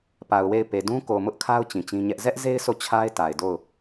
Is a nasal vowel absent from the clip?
no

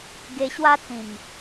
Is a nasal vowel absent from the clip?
no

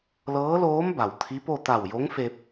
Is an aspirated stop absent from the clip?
no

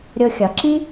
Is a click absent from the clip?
no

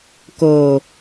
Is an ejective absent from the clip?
yes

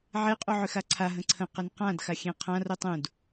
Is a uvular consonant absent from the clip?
no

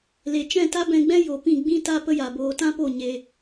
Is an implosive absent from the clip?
yes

